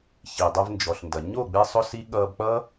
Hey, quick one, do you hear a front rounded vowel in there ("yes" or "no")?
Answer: no